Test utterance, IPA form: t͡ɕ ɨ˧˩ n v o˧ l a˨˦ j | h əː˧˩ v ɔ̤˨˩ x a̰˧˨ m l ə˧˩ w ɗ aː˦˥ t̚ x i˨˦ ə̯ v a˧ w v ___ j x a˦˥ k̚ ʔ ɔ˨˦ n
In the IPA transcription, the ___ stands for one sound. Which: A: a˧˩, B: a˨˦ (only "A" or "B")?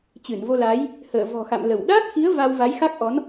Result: B